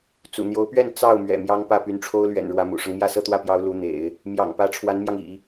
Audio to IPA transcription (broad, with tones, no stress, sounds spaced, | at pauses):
t͡s ṵ˨˩ n̪ j o˧˥ ʊ̯ p ɥ ɛ˥˧ n t͡s ɑ˥˩ ʊ̯ m ɥ ɛ̰˨˩ m j ɑ˥ ŋ p ä˥˩ p y˧˥ n ʈ͡ʂʰ o˥ ʊ̯ l ɥ ɛ̰˨˩ n ɻ w ä˧˥ m ṵ˨˩ ʂ ɤ˦ ŋ m j ä˥˧ s ɤ˥˧ t̪ w ä˥˩ p j ɑ˧˥ ʊ̯ l u˧˥ n̪ ḛ˨˩˦ ɪ̯ | m j ɑ̰˨˩ ŋ p ä˧˥ ʈ͡ʂʰ w a˧˥ n m j ɑ˧ ŋ ḭ˨˩˦